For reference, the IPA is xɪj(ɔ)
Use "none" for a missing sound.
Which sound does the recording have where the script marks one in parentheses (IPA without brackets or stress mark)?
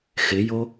o